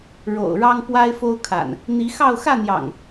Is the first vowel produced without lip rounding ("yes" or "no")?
no